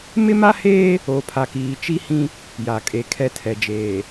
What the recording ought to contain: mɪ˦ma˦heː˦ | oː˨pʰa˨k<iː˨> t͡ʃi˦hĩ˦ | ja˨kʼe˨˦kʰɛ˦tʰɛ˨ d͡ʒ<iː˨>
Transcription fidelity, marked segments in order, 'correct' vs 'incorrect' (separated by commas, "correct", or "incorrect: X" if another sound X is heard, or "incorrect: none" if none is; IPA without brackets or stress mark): correct, incorrect: eː˨